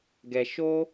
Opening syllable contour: low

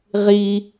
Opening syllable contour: high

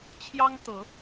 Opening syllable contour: high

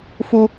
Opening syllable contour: high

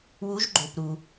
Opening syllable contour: rising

